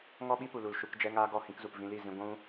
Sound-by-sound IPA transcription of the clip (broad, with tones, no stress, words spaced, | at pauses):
ŋɔ˦ ɓi˦pu˨ lu˨l ʃu˧kd͡ʒɛ˦ŋaː˦ ɡɔ˦˨hĩ˧kzu˨p vĩ˧li˦˨zĩ˧ ɡʷũ˧